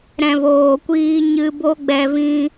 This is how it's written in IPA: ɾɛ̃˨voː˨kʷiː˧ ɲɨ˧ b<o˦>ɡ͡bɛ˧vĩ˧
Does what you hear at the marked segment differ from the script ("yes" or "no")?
no